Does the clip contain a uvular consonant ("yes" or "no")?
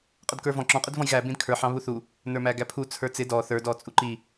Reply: yes